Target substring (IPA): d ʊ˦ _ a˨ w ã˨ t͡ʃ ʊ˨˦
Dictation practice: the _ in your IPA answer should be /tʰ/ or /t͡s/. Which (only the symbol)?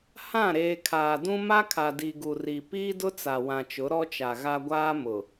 t͡s